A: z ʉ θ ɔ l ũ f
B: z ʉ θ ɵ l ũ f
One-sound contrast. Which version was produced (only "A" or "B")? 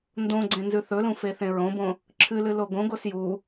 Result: B